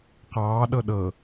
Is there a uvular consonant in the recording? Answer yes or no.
yes